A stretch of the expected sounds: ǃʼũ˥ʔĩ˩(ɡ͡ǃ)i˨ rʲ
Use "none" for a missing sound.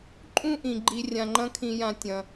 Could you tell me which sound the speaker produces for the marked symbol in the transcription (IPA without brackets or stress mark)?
ɡ͡ǃ